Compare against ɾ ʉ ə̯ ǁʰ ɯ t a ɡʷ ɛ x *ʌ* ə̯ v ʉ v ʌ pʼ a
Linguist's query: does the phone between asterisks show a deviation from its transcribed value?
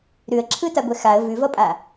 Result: yes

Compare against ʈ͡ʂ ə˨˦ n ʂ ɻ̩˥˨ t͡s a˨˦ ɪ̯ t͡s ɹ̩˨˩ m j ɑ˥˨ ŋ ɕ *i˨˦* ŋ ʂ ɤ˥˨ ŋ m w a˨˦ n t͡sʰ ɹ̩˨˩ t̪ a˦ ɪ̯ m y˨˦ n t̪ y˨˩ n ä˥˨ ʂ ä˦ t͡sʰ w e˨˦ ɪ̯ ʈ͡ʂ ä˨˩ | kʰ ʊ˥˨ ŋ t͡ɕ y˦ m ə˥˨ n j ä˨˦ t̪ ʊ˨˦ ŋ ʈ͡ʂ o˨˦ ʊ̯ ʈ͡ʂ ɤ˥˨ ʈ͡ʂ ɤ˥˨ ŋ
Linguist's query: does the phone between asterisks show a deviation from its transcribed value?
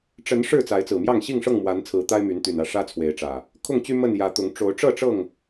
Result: yes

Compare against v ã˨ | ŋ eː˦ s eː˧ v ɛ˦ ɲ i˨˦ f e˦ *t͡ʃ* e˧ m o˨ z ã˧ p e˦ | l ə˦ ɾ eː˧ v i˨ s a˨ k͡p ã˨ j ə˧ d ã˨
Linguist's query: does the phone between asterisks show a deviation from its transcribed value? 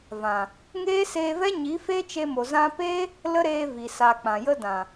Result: no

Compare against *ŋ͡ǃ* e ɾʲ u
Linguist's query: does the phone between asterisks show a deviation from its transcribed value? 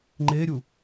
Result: no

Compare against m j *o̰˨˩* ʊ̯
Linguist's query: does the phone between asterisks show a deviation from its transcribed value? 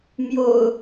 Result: no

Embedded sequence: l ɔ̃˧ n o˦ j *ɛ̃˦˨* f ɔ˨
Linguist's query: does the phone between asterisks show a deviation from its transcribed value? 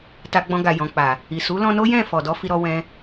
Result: no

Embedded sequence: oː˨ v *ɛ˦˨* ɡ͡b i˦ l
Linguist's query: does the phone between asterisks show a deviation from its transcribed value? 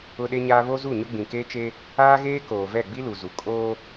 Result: no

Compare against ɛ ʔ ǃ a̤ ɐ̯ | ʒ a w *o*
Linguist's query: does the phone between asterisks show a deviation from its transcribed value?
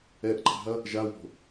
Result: yes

